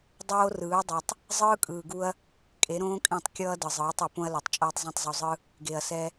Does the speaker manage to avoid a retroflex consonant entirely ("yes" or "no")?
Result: yes